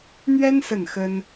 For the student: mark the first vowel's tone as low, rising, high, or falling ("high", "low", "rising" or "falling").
high